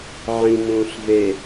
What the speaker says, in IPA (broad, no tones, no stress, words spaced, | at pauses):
ʕĩnũːɬve